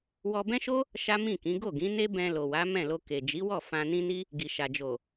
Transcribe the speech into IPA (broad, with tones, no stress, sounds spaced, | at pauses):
w ɔ˧ b ɛ̃˦ ʃ o˦ | ʃ a˦ m ĩ˦˨ k ĩ˨˦ ɡ o˦˨ ɡ ĩ˨˦ n e˦ b ɛ̃˧ l o˨ w a˨˦ m ɛ̃˦˨ l o˧ k e˨ d͡ʒ i˨˦ w ɔ˦˨ f ã˧ n ĩ˦ n i˦ | ɡ i˨ ʃ a˨ d͡ʒ o˨